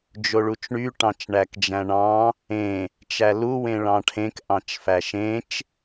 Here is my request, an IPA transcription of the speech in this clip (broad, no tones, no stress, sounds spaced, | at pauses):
d͡ʒ o ɭ u t͡ʃ ɳ y ʈ ɑ̃ t͡ʃ ɳ æ k d͡ʒ æ̃ ɳ ɑ̃ | ẽ | t͡ʃ æ l u w ẽ ɭ ɑ̃ ʈʰ ẽ k ʔ ɑ̃ t͡ʃ f æ ʃ ẽ t͡ʃ